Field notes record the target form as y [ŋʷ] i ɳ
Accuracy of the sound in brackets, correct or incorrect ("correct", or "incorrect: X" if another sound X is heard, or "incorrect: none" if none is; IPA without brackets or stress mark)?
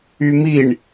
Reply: incorrect: m